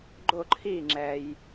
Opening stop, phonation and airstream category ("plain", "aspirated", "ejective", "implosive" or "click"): click